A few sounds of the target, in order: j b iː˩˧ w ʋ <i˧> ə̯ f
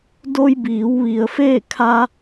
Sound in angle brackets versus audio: incorrect: i˩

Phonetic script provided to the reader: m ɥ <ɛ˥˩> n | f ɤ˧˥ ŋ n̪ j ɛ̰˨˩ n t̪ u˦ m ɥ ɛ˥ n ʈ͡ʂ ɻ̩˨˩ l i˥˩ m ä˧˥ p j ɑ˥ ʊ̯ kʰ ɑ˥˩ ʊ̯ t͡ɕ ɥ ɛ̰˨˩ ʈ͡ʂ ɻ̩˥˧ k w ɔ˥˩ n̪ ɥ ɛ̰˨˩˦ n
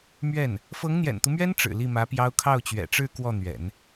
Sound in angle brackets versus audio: correct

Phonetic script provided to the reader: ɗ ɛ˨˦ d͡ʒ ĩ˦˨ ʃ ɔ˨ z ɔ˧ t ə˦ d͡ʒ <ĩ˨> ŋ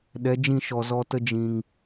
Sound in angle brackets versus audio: correct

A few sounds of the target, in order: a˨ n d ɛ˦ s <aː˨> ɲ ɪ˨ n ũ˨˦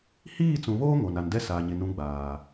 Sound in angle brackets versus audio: correct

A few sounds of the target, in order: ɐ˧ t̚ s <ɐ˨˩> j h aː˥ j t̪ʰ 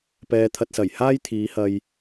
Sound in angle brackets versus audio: correct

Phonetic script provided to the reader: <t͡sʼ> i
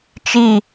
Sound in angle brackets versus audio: incorrect: t͡ʃ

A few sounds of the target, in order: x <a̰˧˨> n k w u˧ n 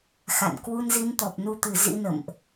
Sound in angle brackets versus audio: correct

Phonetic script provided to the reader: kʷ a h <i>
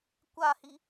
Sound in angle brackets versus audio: correct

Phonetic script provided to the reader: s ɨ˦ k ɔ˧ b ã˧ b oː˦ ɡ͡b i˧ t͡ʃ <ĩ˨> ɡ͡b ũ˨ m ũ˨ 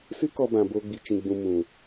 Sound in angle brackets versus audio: correct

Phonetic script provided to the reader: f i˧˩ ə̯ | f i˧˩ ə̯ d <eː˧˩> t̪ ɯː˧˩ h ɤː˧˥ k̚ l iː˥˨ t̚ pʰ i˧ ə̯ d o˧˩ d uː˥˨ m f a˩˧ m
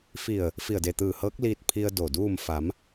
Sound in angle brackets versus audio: incorrect: e˧˩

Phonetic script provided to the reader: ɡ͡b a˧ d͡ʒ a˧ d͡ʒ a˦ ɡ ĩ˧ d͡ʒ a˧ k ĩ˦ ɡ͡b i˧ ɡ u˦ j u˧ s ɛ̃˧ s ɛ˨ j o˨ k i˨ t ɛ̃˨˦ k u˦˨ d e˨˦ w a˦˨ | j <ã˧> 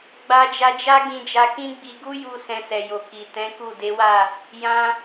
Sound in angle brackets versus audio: correct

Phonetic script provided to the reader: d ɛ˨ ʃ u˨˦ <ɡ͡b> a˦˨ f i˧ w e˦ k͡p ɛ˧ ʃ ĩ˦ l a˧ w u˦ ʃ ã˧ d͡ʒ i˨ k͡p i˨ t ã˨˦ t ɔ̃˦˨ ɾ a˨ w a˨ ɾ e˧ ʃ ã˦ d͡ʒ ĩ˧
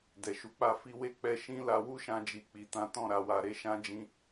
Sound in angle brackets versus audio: incorrect: k͡p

